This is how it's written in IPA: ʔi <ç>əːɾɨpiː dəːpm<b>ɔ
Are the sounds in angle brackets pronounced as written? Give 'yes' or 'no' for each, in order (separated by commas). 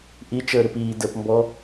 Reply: no, yes